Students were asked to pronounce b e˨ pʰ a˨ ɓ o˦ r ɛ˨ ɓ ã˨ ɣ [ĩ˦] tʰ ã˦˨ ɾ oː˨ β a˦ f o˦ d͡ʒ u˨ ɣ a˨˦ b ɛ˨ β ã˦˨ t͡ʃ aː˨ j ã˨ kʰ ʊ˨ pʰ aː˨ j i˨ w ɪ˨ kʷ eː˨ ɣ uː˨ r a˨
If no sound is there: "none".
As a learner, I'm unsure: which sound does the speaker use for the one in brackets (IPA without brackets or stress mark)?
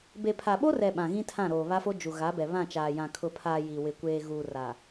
ĩ˦